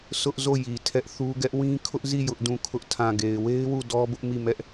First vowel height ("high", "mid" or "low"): high